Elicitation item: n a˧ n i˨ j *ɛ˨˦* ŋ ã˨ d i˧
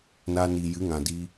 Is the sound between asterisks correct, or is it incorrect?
incorrect